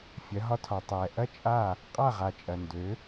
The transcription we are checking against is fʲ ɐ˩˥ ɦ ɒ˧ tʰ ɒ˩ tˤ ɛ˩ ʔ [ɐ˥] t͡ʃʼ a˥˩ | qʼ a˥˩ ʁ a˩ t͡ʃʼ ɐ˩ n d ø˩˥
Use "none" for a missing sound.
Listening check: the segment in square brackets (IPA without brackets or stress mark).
ɐ˥